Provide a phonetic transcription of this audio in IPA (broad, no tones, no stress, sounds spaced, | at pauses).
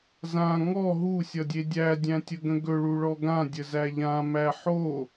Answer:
z ã ŋ ɔ ɦ u sʲ ʌ dʲ e dʲ æ dʲ æ̃ tʲ ə ɡ ə̃ ɡ ɵ ɭ u ɭ ɔ ɡ ã dʲ ə z æ ʎ ã m æ ħ o